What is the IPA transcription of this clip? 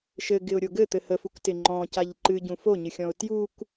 ʃɘɡɪʊ̯ɾʲo ɡɘt̪ɘ həfuktɪ ŋ͡ǃɔ̃caʎ ǃɨɟũ foɲɨxʲɔ̃ʊ̯ tjuk

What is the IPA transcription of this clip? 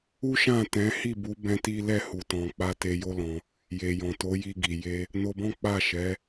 u˦ʃã˦˨tɛ̃˨˦ hi˦˨bu˨˦ bɛ̃˦ti˦ lɛ˦˨hu˨tɔ̃˨ k͡pa˧ te˧jo˦lɔ̃˧ | je˨jɔ̃˨to˨˦ ji˧ɡi˨ je˧ | no˧bɔ̃˦k͡pa˦˨ʃɛ˨˦

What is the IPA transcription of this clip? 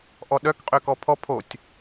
ʔɔɗœk qʼøkɔpʰɔ pʰotʲ

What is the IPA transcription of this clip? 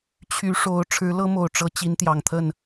t͡ɕʰy˨˦ʂo˨˦ʊ̯ ʈ͡ʂʰɻ̩˨˦lɤ˦mo˨˩ʊ̯ʈ͡ʂɤ˨˦ t͡ɕi˨˦nt̪jɑ˨˩ŋt̪ʰə˥˨n

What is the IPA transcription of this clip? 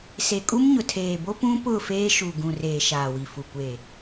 se˨kʼu˦mɲʊ˨tʰeː˨ bo˦pũ˦ pʊ˦˨feː˦ʃu˨ ɡũ˨reː˨ ʃaː˨wi˨fu˨ kʷeː˨

